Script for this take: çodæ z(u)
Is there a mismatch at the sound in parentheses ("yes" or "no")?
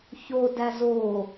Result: yes